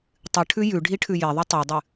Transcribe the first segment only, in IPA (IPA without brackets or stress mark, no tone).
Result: tˤ